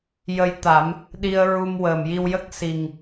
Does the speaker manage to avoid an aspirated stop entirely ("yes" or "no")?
yes